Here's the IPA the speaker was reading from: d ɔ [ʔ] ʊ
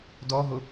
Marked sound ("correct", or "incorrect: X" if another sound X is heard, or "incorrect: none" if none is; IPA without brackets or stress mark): incorrect: ɦ